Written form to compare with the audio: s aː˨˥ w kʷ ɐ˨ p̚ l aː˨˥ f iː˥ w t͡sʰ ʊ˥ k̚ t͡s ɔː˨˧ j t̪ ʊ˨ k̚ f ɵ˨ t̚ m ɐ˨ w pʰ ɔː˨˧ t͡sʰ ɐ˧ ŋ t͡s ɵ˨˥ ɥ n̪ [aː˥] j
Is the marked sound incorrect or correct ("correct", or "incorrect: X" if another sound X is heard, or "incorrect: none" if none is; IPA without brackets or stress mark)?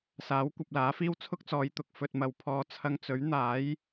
incorrect: aː˨˥